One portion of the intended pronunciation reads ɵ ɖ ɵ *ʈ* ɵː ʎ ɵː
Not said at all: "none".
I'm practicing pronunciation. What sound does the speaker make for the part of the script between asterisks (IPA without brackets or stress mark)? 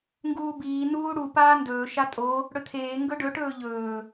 ʈ